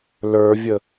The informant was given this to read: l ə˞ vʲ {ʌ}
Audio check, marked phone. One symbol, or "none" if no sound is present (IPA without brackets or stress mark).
ə